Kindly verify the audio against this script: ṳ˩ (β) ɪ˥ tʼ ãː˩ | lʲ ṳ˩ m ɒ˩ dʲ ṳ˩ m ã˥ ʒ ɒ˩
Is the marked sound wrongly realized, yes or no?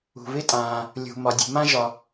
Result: no